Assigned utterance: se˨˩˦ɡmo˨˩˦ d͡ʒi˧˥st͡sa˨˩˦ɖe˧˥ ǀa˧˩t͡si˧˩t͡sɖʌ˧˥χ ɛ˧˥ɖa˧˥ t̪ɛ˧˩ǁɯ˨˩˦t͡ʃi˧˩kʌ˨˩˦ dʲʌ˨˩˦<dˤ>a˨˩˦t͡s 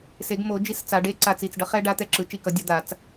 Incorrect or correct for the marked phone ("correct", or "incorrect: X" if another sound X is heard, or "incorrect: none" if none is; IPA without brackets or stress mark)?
incorrect: d̪